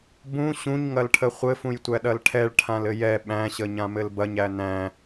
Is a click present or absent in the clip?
absent